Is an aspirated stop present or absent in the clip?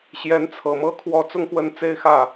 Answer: present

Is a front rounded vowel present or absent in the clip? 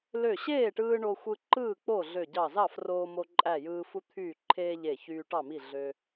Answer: present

